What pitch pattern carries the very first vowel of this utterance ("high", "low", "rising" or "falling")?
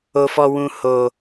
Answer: low